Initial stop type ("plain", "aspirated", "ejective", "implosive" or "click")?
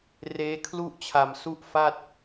aspirated